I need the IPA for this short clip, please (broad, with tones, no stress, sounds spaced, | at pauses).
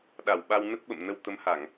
ɗ a˧˩ w ɓ a˧ w n ə˦˥ t̚ ɓ ə̰˧˨ m n ə˧ w t̪ ə˨˦ m h a˧˩˨ ŋ